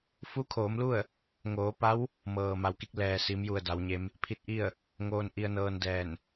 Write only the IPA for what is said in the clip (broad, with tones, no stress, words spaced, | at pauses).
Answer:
fu˧˥kʰoː˩˧mlu˥˨ə̯ | ŋoː˩˧pa˧˥w | mɤː˩ma˩˧wki˧˥k̚ lɛː˩si˩˧mju˩ə̯ da˩˧wɲe˧˥m | pʰi˧t̚ʔi˥˨ə̯ | ŋoː˧nʔi˧ə̯nɤː˧ndɛː˧˩n